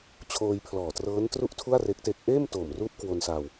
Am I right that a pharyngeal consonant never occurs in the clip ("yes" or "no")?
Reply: yes